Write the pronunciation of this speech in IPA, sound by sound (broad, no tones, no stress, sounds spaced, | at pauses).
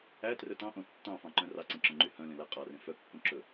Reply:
æ t r ɵ t ɑ̃ ʔ õ tː ɑ̃ f ɑ̃ ǃ œ̃ r ɑ ǀ ẽ ǁ œ̃ ŋ͡ǃ y h œ̃ l ẽ l æ qʼ ɑ r ẽ f œ kː õ ǁ ɵ